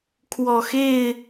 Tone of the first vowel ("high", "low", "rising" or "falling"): low